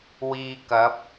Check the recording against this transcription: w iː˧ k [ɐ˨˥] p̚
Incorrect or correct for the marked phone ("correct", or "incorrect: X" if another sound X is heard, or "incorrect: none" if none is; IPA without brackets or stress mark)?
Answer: correct